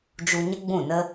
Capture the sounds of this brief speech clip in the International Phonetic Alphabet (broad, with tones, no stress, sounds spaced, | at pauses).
d͡ʒ u˧ ɲ ə˦ ɡ͡b ũ˦˨ n ə˦